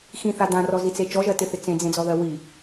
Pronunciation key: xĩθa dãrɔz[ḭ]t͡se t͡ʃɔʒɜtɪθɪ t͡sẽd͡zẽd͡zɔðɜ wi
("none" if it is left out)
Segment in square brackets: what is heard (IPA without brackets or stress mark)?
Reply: i